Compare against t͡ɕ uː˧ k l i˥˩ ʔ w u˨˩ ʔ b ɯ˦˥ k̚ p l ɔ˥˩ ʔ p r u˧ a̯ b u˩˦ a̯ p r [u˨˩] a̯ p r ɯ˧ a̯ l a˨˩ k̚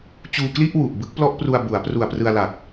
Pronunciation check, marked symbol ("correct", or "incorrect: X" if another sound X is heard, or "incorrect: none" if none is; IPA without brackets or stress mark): correct